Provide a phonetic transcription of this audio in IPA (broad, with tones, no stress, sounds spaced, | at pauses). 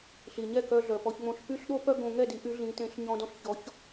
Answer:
ɬ i˩ ɲ ɛ˥˩ k œ˧ ɮ œ˩ p ɔ˧ ç ŋ͡m õ˧ ɬ p y˥ ɬ ɗ o˥ p œ˥ ɡ õ˧ ŋ ɛ˥˩ d i˩˥ ʔ y˩˥ ɮ ĩ˩˥ t ẽ˩˥ ɬ ɲ ɔ̃˧ d ɔ̃˥˩ ɬ ç ɔ˩˥ ç